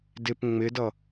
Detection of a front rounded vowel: absent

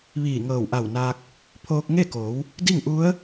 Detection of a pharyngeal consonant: absent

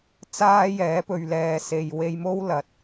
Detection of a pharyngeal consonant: absent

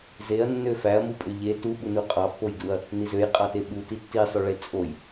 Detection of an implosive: present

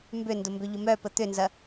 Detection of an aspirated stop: absent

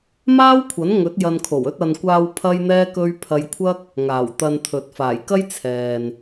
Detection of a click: absent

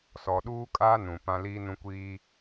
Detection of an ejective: present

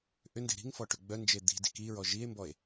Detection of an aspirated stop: absent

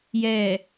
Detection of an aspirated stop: absent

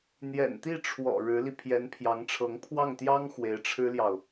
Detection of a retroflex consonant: present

